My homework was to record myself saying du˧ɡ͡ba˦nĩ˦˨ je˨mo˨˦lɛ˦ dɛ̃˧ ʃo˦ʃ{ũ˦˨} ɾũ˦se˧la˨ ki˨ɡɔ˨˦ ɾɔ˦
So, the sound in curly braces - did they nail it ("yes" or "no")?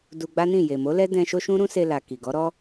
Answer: no